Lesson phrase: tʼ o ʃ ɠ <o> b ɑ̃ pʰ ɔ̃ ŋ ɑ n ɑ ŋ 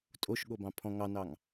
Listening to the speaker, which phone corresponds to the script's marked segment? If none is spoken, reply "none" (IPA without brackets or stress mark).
o